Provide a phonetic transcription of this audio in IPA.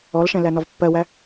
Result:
ɔlʃɛ̃ lænɒvpːɜwæ

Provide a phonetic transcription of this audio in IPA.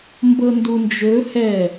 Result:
mbɤndund͡ʒɵ hɛ

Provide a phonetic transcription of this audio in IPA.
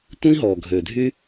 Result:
tʷĩ˦ɦɔ˨ ɡʱø˨dʱy˦

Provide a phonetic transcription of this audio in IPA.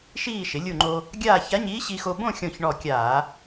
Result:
ʃiː˥˧ ʃɪ˩˧lʲu˧˩ŋ͡ǃo˧ | ɡʲaː˥˧ ça˧˥ɲiː˧˥ɕi˧xo˧ bõ˥˧xʲɔ̃˧˩ç ɳɔ˧˩kʲaː˧˩˧

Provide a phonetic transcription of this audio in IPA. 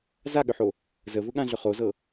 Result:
zaɠʏħo | zəvʊɠãɮʏ χozɤ

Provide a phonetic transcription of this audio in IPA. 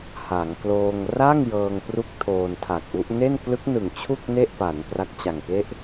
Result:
ha˩˦ŋ kloː˧ŋ ra˥˩ŋ jɤː˧ŋpru˦˥k̚ tʰoː˧ntʰa˨˩k̚ʔu˦˥ʔ ne˥˩nklɯ˦˥k̚nɯ˨˩ŋt͡ɕʰu˥˩k̚ ne˥˩ʔpa˩˦n pra˦˥k̚t͡ɕa˨˩ŋke˥˩ʔ

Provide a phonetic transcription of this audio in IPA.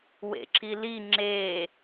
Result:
wḛǁili ŋ͡ǁe

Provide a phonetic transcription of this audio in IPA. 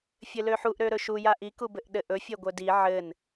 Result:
fʲɘløħuʔ ɾøɾɵʃu jaʔi kubɘʔɗɘʔɵ fʲeɡʷœdi ʕɘn

